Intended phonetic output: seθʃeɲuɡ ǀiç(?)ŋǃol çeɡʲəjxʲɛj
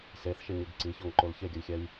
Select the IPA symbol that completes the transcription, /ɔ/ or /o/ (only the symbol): ɔ